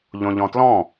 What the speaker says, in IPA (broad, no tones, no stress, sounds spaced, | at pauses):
ʎ õ ʎ ɔ̃ t l ɔ̃